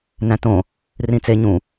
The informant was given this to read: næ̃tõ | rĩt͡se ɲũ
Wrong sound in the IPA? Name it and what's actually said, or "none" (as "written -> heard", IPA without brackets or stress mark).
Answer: none